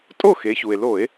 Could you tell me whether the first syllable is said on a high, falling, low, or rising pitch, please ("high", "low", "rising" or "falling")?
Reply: falling